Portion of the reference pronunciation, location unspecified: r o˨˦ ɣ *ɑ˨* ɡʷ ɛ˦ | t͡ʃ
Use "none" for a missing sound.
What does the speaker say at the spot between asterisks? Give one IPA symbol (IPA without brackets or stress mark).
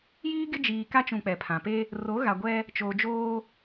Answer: a˨